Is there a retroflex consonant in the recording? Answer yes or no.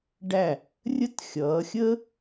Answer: yes